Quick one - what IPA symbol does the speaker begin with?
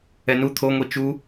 ɛ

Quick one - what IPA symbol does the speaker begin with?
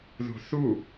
ð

